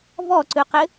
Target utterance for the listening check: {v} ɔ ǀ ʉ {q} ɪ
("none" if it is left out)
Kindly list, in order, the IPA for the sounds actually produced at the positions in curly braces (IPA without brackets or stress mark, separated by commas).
v, q